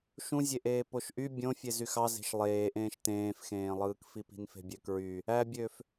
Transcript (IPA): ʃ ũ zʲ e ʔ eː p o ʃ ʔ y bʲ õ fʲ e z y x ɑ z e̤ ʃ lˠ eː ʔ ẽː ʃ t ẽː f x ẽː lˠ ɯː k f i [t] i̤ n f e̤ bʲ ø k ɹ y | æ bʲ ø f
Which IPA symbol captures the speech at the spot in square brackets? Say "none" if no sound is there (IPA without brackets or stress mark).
p